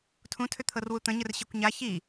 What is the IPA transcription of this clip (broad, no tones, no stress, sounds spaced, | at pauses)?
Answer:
tʰ ũ tʰ ʏ t̪ʰ ɤ r w u t̪ ə̃ ɲ ə r ɕ i kʷ ɲ a ç i